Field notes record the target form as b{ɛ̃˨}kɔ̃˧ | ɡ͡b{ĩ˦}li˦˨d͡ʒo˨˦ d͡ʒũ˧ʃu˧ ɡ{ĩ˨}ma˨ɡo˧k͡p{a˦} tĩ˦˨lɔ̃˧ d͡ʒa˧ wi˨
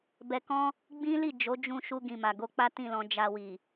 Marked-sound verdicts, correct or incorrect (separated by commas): incorrect, correct, correct, correct